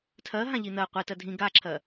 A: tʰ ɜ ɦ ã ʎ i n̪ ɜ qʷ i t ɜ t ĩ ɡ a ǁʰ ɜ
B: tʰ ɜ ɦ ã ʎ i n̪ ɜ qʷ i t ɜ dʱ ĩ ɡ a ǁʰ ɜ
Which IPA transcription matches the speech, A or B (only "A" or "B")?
B